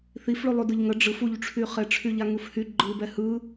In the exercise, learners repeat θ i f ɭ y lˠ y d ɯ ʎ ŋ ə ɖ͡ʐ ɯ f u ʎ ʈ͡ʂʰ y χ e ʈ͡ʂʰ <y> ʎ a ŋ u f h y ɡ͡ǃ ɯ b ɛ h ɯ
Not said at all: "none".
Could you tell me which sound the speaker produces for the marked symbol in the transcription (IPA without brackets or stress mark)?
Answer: y